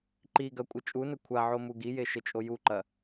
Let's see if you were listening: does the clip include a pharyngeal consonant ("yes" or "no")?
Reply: yes